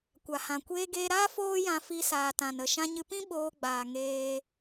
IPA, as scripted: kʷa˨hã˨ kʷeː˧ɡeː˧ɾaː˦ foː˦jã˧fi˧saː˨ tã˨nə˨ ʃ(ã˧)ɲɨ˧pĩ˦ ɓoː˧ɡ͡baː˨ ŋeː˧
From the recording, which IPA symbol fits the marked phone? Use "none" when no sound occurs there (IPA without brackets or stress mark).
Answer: ã˧